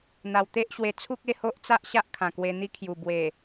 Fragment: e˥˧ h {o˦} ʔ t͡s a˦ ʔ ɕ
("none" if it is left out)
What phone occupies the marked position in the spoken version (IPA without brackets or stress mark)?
o˦